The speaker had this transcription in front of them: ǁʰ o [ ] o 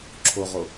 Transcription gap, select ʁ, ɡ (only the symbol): ʁ